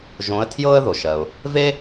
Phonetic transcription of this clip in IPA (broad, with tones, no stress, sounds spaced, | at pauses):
ʒ õ˧˥ ə̯ tʰ j ɤ˥ ə̯ ð o˩ ʃ ɜ˩ ʊ̯ | v e˥